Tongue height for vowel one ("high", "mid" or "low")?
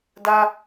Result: low